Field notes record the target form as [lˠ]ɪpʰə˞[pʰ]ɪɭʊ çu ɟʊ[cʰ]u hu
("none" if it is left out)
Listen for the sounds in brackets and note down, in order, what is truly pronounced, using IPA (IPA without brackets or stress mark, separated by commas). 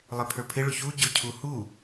lˠ, pʰ, cʰ